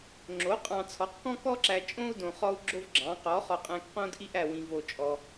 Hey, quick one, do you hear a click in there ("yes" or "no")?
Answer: yes